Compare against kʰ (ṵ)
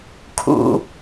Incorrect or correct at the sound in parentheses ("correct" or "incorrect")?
correct